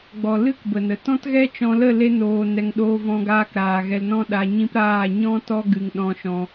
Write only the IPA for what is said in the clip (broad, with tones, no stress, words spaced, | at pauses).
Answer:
ɡ͡bɔ˨lɨ˦k bə˨nə˨ tɔ̃˦tɣɛ˦t͡ʃɔ̃˧lə˦˨ le˦noː˧nɛ˧ŋ ɗoː˧vɔ̃˧ɡaː˧k ɾaː˨ɣɛ˧lnɔ̃˦ ɗa˧ɲĩ˦p ɾaː˦˨ ɲɔ̃˦ tɔ˦ ɡɨ˨ŋɗɔ̃˧ʃɔ̃˧